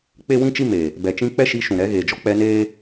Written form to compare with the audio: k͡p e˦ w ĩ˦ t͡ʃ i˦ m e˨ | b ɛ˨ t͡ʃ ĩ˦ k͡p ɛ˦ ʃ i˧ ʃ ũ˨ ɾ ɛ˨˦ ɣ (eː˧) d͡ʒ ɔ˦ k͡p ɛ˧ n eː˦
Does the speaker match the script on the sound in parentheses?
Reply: no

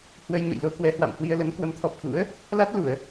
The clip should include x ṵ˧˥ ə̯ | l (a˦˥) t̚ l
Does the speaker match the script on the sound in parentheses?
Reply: yes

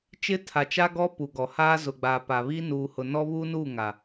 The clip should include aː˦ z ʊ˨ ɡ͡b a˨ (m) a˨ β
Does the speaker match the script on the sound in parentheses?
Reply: no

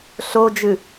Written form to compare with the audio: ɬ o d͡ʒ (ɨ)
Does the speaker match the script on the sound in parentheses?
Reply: yes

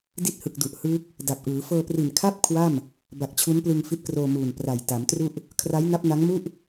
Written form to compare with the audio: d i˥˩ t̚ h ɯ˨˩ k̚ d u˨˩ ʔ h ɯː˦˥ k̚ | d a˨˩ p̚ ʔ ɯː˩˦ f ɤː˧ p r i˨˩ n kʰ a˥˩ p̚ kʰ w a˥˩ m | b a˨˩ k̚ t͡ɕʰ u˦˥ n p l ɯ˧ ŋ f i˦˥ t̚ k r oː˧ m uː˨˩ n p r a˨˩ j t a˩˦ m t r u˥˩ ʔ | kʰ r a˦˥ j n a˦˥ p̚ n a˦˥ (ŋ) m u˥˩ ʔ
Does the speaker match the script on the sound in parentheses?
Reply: yes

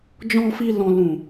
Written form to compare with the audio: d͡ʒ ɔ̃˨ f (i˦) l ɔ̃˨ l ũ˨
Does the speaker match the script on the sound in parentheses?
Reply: no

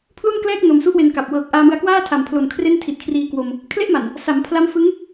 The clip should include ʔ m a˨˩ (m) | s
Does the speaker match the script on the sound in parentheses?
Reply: no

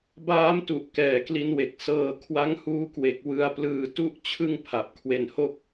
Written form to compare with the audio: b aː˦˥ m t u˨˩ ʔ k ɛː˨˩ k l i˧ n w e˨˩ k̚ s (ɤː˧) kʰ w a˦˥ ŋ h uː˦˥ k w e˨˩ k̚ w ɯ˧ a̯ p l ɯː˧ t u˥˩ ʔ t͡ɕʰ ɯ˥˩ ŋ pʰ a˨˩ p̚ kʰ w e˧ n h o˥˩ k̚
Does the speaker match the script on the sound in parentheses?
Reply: yes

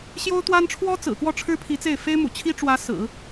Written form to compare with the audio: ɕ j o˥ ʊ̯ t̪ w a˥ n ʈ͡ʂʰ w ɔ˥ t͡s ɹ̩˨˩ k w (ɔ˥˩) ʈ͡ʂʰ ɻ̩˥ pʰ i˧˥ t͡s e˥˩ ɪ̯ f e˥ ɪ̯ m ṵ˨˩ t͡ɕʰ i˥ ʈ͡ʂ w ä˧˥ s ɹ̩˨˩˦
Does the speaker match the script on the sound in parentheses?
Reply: yes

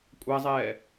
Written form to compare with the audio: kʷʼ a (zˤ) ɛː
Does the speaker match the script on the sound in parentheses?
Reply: yes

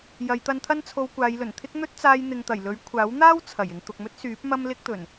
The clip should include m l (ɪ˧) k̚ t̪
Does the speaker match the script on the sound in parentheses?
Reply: no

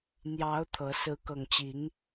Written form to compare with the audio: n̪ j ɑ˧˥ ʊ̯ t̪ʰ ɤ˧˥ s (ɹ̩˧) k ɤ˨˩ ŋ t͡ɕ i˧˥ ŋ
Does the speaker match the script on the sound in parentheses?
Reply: no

